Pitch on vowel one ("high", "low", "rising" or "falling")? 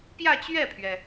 falling